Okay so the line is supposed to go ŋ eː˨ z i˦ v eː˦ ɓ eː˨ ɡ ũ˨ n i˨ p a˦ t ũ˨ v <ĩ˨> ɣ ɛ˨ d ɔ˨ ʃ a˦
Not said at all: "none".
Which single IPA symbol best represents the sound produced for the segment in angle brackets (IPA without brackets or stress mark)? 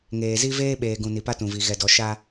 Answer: i˨